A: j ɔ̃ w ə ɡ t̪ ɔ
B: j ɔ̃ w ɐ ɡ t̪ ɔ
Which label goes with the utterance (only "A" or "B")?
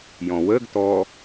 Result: A